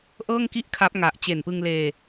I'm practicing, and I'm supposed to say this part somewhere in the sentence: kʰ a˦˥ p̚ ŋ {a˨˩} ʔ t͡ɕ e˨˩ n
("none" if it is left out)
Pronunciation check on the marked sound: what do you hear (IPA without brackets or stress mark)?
a˨˩